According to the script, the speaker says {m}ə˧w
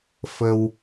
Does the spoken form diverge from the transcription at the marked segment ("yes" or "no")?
yes